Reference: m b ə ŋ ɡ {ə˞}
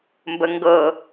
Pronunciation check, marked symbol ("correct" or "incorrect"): incorrect